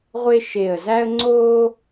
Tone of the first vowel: high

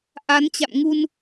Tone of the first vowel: rising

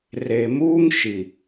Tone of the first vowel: low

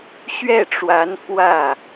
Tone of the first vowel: falling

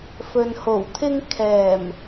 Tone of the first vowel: low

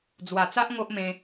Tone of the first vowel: low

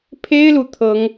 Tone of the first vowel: high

